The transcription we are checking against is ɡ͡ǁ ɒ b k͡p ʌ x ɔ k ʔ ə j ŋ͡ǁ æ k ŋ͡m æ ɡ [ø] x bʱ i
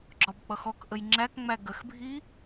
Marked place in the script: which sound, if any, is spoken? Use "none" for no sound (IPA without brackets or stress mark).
ə